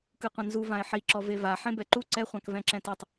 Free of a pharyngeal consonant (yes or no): no